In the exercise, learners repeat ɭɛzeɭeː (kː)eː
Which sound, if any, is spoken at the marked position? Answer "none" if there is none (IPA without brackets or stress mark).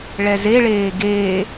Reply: ɡ